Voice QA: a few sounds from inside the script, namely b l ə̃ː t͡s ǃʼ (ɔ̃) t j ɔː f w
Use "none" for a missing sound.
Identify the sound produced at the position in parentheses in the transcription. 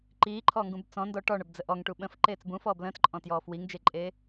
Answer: ɔ̃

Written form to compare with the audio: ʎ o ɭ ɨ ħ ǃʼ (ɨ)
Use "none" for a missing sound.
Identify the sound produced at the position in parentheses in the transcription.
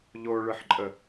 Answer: ə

